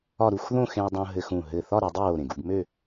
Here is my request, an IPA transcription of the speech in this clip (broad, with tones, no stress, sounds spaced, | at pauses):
ɒ˥˧ ɾ u˥˧ x ð õ˥˧ x ẽ˧ w dˤ õ˧ ɦ ɘ˧ x ũ˧˩ ɦ ɘ˧˩ θ ɒ˥˧ ɾ e˩˧ dˤ ɘ˥˧ w o˧˩ ɾ ẽ˧˩ ɡ u˥˧ ɡ m ø˥˧